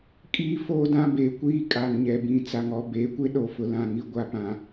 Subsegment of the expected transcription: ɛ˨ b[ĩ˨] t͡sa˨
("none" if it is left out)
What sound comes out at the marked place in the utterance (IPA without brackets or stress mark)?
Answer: ĩ˨